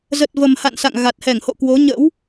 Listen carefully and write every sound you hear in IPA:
z ə˨˩ t̚ v ə˨˩ m h a̰˧˨ n s a̰˧˨ ŋ ɣ a˨˩ t̚ h ɛ˧˩ ŋ h o̰˧˨ k w o˨˦ ɲ ə̰˧˥ w

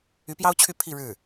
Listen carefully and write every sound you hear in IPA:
y˧˥ p j ɑ˥ ʊ̯ t͡ɕʰ y˥˧ pʰ i˥˧ ɻ ɻ̩˥˩

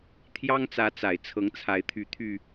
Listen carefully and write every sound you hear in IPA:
t̪ʰ j ɑ˦ ŋ t͡s ä˨˦ t͡s a˨˩ ɪ̯ t͡sʰ ɤ˨˦ ŋ t͡sʰ a˨˦ ɪ̯ t̪ʰ y˨˦ t̪ʰ y˧

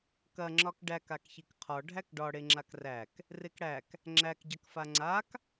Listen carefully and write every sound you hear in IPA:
k ɐ ŋ͡ǁ ɒ k ɖ æ k a k ç i k qʰ ɒ ɖʱ æ k ɖ ɒ ɽ e ŋ͡ǁ a k r æ k | r e k ɽ æ k | ŋ͡ǁ æ k ɟ ɐ k f a ŋ͡ǀ a k

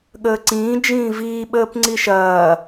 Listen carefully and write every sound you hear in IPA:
ɠ əː ǀ ĩː d͡ʒ ĩː v iː ɓ əː p ŋ͡ǀ i ʃ ɐː

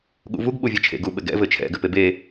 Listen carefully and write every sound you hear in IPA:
ɠ ṵ v u ɡ ɓ u vʲ ɛ t͡ʃʰ ḛ ɡ u ɓ ɘ ɡ ɛ̰ v ɘ t͡ʃʰ ɛ̰ ɡ ɘ p e b e

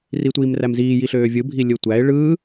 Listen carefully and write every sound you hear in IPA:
r i tʷ iː m r æ m z iː j i ɬ øː vʲ ɯ bʱ i lʲ ɯ tʷ æ ɪ̯ ɭ ɯ

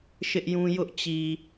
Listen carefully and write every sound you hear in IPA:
ʃ ɪ˦ ʔ j ũ˦ j ʊ˦ ʔ t͡ɕ i˨

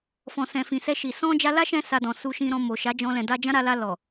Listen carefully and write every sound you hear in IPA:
f ɔ̃˨ s ɛ̃˨ f ĩ˨ s ɛ˧ ʃ i˨ s ɔ̃˧ d͡ʒ a˧ l a˦ ʃ ɛ̃˧ s a˧ d ɔ̃˨ s u˧ ʃ ĩ˧ ɾ ɔ̃˧ m o˨ ʃ a˨˦ d͡ʒ ɔ̃˧ l ɛ̃˨ d a˧ d͡ʒ ã˦ ɾ a˧ l a˧ l ɔ˨

